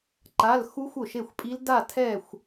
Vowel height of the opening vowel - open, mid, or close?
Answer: open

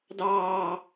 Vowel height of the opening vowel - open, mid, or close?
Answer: open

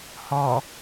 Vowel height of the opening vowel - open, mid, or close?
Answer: mid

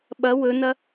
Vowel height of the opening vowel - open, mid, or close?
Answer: open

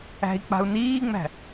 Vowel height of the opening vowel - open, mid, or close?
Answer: open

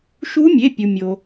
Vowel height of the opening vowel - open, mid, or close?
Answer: close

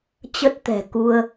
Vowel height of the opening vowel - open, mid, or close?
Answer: mid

